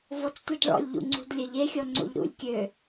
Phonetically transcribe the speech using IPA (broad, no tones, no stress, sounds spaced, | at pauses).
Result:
v ɔ t͡s tʷ e d ɭ ɔ̰ lʲ ʎ ṵ ŋ͡ǀ ṳ d lʲ ə ʎ e xʲ ɔ ŋ͡ǀ o̰ ʎ ɾ ṵ lʲ kʲ ø